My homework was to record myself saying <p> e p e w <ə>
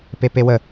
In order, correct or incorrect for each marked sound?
correct, correct

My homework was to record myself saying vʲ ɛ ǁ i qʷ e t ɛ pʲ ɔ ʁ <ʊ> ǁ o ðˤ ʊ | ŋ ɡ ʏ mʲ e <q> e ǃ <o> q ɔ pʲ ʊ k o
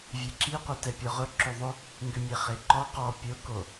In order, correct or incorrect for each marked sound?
correct, incorrect, incorrect

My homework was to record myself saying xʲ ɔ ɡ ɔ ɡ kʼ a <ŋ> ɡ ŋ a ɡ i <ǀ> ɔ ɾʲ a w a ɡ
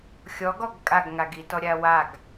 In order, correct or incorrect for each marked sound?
incorrect, incorrect

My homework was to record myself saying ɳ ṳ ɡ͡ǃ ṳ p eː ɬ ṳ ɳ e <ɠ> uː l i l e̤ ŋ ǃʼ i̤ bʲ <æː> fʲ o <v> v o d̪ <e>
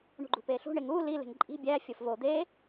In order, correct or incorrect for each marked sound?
incorrect, correct, incorrect, incorrect

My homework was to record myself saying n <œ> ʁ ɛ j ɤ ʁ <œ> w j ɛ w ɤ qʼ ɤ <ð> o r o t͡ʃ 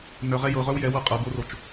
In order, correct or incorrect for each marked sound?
correct, correct, incorrect

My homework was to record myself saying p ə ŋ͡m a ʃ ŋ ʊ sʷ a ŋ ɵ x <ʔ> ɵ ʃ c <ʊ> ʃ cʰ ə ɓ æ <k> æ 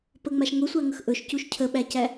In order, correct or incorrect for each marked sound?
correct, incorrect, incorrect

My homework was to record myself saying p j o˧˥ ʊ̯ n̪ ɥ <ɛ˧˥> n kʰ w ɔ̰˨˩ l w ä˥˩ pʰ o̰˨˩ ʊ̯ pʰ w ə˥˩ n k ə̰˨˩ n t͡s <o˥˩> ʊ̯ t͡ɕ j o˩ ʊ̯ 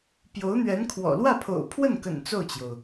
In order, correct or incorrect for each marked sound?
correct, correct

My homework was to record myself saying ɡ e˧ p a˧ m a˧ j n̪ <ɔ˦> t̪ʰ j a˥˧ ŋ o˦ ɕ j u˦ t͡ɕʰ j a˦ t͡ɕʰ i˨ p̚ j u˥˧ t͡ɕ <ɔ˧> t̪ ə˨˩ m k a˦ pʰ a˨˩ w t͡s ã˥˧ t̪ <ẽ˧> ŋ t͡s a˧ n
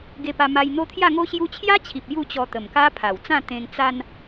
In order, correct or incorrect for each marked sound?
incorrect, correct, correct

